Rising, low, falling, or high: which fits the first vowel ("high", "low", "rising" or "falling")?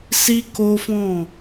high